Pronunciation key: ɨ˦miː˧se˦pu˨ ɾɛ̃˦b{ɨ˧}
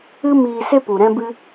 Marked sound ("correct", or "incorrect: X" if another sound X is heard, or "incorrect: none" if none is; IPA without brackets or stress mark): incorrect: ɨ˦